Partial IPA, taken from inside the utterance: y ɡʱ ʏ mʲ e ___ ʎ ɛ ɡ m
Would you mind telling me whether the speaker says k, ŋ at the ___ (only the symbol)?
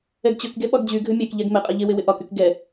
k